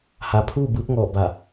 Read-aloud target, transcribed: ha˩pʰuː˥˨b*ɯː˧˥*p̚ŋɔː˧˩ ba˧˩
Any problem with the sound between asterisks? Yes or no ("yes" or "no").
no